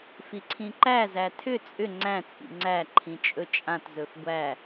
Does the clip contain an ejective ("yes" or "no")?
yes